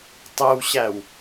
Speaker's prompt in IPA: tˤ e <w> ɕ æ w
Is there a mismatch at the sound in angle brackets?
no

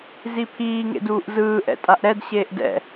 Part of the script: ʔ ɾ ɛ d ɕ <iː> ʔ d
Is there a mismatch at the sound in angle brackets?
yes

